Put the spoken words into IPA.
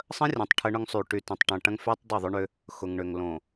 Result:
sˤə̃˦rʲɐ̃˨tˤ ʈʰə˦ɳʊ˦ŋsˤy˨ ʈy˨tɐ̃˨tˤʈɐ̃˨ʈɐ̃˦ŋ fy˦tˤ dˤʏ˦˨ðˤʏ˦ɳʏ˦ | xʊ˨ŋɳʏ˨ŋlõ˨

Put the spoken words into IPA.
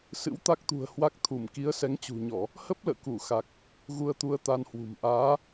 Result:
sɨ̰˧˥wt̪a˦˥k̚t̪ṳ˨˩ə̯ hwa˦˥k̚t̪ʰu˧˩m ki˨˦ə̯sɛ˨˦ŋt͡ɕṳ˨˩ɲɔ˧˩˨ | hə˦˥p̚lə̰ː˧˨ ku˧˩xa˨˩k̚ | ɣu˧ə̯t̪u˧ə̯t̪a˧nhwṳ˨˩m ʔaː˨˦

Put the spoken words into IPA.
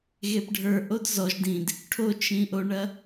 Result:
ɣepɖʱə˞ ʔodzɔʒ dĩd | ʈʰot͡ʃĩʔoɳɐ

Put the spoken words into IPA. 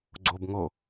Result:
ɡ͡ǀob ŋo

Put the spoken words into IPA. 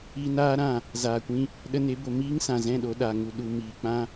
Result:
iː˧naː˦ ɾã˦˨ | zaː˨kʷĩ˧ | ɗə˧ne˨˦bo˨ miː˦ŋsã˨zɛ̃˦˨ ɗo˧ ɗa˨ŋu˨ ɗu˨ miː˨k͡pã˦

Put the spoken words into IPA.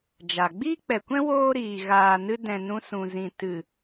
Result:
d͡ʒa˨ ɡ͡biː˦k͡pɛ˨kʷɛ̃˦ woː˦ɾiː˨ ɣaː˨nɨ˧ dɛ̃˨nũ˧sũ˨zĩ˨ tɨ˨

